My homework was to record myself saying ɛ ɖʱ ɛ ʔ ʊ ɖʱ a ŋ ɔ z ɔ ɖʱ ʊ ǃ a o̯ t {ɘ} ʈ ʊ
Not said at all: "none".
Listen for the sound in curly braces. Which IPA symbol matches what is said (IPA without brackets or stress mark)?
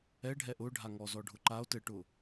ɘ